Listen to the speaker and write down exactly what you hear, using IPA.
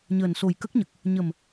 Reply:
ɲ əː˨˩ n s o˨˩ j k ə˦˥ k̚ ɲ ə˨˩ k̚ | ɲ ə˨˩ m

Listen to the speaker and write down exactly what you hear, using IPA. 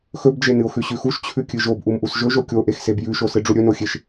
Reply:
x ɵ b d͡ʒ e n ɨ o̯ x ʉ ɕ ʉ x u ʃ t͡ɕʰ ʉ kʲ ɨ ʒ o b ʔ u m ʔ u s ʒ ɵ ʒ o kʲ o ʔ e x s e b j ʉ ʃ o s ɨ ɖ͡ʐ u ɾʲ ɵ n o xʲ e ʃ

